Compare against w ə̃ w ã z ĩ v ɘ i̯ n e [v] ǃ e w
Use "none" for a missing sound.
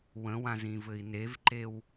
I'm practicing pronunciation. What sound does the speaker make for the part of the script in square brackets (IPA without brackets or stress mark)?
v